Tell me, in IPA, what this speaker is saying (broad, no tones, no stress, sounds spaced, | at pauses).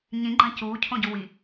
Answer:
ɲ ĩ ɡ͡ǃ ã c uː cʰ õ ɟ u w i